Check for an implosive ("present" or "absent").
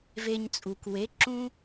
absent